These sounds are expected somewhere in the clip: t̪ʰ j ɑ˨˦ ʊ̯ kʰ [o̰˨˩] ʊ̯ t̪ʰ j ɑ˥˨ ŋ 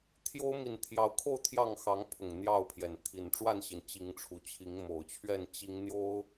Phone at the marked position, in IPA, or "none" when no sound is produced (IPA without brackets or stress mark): o˥˨